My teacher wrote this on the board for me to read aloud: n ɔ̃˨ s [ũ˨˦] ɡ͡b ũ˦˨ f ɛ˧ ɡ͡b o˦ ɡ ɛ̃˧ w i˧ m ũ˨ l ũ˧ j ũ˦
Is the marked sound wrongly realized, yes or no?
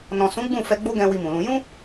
no